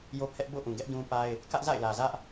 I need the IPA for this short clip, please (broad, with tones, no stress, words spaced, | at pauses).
jo˦pʰɛ˦ʔ bo̰˦˨ ʔũ˨ɡɛ˦ʔ dũ˦pa˦ɪ̯ | kä˦ʔza̰˦˨ɪ̯lä˨zä˦ʔ